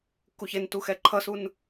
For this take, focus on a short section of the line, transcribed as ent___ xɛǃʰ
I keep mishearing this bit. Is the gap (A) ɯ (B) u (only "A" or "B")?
B